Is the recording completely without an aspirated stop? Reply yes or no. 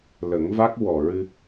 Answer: yes